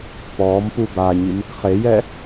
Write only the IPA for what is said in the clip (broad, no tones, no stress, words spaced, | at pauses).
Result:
pɔːm pubaɲim | χejɛ